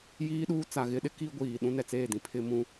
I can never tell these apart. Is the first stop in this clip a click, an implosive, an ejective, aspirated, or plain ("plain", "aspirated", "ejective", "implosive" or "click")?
implosive